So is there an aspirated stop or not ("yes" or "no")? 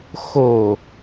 no